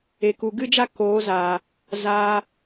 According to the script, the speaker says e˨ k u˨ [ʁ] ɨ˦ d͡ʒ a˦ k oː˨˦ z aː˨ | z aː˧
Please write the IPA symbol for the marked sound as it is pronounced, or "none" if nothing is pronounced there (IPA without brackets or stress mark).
ɡ